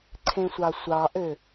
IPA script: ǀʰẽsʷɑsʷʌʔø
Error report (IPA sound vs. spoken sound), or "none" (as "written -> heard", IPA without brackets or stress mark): ʌ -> ɑ